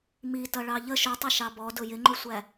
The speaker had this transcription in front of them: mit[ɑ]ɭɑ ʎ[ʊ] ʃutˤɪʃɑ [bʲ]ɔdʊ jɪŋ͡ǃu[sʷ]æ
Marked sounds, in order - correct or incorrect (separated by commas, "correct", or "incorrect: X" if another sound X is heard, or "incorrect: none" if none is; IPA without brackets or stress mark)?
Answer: incorrect: ʌ, incorrect: ə, incorrect: b, correct